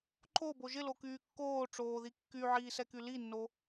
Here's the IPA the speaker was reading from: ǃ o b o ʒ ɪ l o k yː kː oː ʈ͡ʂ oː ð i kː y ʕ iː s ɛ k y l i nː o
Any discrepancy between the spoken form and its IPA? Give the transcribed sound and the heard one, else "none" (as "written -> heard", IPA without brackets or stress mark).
none